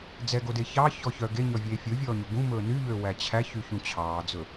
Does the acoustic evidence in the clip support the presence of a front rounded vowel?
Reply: yes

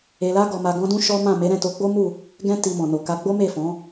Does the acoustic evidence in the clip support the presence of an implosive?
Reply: no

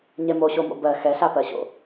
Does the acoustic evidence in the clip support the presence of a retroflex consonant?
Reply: no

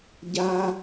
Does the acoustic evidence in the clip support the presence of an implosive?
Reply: no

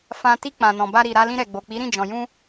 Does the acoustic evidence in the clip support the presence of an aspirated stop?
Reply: no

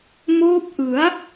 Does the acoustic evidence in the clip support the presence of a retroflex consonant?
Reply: no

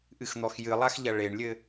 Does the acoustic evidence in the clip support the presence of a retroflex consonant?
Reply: yes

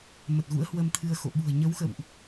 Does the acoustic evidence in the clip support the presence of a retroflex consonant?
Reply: no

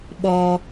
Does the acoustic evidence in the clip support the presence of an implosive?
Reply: yes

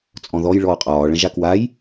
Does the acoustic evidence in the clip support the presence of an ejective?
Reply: yes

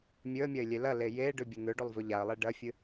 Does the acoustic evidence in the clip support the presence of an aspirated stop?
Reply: no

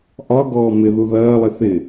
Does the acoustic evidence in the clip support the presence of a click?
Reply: no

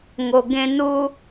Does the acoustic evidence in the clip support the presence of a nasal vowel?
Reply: yes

